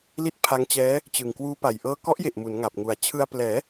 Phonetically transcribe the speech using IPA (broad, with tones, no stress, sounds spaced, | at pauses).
l i˥˩ t̚ pʰ a˦˥ ŋ t͡ɕ ɛː˦˥ | t͡ɕ ɯ˨˩ ŋ k w uː˦˥ p a˨˩ j ʔ ɤː˧ k ɔ˦˥ ʔ j e˨˩ ʔ m u˩˦ n ŋ a˨˩ p̚ ŋ u˩˦ a̯ t͡ɕʰ ɯ˧ a̯ p l ɛː˩˦